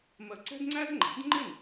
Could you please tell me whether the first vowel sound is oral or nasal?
oral